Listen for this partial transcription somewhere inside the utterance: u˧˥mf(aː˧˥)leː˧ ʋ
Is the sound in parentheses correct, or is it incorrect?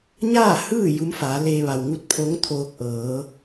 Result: incorrect